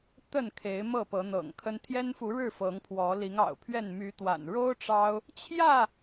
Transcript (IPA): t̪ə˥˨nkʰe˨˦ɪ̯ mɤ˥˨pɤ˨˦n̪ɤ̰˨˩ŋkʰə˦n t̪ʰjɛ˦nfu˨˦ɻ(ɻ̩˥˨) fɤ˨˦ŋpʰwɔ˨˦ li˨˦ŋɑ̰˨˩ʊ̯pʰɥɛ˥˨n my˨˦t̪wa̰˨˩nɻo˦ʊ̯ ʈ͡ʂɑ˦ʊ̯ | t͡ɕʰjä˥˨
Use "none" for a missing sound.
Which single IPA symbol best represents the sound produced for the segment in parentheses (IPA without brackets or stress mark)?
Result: ɻ̩˥˨